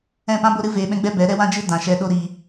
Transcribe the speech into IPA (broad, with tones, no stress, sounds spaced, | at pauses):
ɛ̃˦˨ p ã˦ b o˦ ɾ ɨ˦ v eː˧ ɓ ɛ̃˦ ɡ͡b ɛ˦ b ɛ˨˦ ɾ ɛ˦ w ã˦ d͡ʒ ɨ˦ d ã˨ ʃ ɛ˧ ɗ o˦ ɾ iː˧